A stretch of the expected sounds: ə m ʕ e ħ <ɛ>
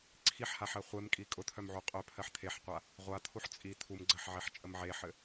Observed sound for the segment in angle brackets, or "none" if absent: ɘ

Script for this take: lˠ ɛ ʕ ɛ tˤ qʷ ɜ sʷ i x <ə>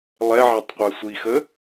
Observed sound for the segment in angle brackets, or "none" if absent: ə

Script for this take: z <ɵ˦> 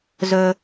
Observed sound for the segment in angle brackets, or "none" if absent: ɵ˦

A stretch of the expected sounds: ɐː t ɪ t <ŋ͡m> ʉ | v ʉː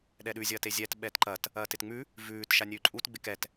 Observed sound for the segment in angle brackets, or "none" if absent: ŋ͡m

